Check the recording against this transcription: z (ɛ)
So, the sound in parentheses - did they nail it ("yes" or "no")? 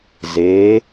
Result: no